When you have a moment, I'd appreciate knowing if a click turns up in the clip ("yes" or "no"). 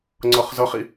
yes